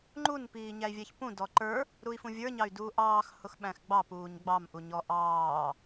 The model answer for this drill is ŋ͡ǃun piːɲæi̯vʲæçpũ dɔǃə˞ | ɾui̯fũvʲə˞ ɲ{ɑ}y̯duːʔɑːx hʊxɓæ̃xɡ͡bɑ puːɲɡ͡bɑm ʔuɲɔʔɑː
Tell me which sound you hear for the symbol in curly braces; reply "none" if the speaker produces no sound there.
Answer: ɑ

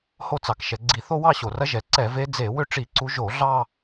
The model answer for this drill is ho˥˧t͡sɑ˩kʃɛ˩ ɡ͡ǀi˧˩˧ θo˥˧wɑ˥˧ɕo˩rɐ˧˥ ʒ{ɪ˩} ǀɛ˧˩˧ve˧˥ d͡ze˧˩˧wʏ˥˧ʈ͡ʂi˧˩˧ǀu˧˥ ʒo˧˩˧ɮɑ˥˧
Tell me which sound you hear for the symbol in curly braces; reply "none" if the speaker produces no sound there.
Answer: ɛ˩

